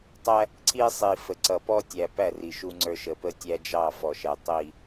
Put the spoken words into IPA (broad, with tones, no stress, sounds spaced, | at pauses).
tˤ æ˦ | ǀ i˦ sˤ i˨ f ə˨ ǀ ʌ˨ p ɔ˦ tʲ æ˨ p æ˦˨ r i˨ ʃ u˦ ŋ͡ǀ ə˞˦ ʃ ə˨ p ə˦ tʲ æ˦ d͡ʒ ɑ˦˨ f ɔ˨ ʃ ɛ˨ tˤ i˦˨